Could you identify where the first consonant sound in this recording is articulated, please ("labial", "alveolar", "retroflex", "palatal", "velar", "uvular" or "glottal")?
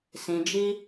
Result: alveolar